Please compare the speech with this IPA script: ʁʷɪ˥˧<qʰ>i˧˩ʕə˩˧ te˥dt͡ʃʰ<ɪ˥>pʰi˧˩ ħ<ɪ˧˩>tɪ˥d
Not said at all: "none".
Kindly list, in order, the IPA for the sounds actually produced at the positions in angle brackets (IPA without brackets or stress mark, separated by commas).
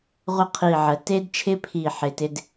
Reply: qʰ, ɪ˥, ɪ˧˩